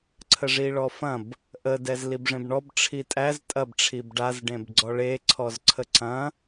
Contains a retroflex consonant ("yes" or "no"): yes